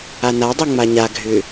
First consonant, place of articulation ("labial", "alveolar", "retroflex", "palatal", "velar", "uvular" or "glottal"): alveolar